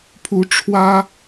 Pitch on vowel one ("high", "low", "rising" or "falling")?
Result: rising